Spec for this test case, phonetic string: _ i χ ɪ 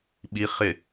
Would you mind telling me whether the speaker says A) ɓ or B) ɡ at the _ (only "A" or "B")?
A